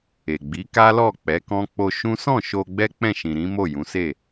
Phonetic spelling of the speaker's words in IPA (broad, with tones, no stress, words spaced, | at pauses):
e˨ɡ͡bi˨˦ ka˦lɔ˦˨ k͡pɛ˨˦kɔ̃˦k͡po˦ ʃũ˦ sɔ̃˦˨ ʃo˧ ɡ͡bɛ˦k͡pɛ̃˦˨ʃĩ˨ ɾĩ˨˦ mo˦˨jũ˨˦se˦˨